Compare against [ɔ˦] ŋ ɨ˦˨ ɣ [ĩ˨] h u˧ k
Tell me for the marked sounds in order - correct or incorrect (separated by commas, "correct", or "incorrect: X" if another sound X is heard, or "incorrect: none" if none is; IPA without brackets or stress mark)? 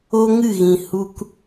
incorrect: o˦, correct